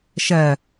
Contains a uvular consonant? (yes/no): no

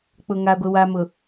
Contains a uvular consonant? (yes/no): no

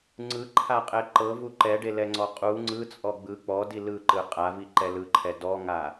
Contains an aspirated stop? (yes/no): yes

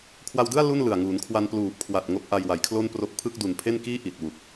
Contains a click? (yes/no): no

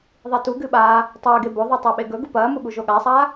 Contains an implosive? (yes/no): yes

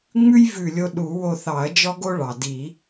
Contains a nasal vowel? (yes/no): no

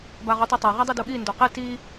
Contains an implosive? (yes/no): yes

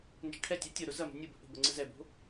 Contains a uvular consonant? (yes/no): no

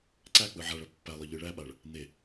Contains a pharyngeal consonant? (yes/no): yes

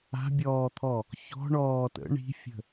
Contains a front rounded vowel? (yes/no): no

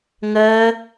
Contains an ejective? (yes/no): no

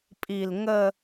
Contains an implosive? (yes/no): no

